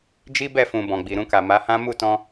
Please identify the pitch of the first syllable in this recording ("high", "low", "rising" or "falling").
high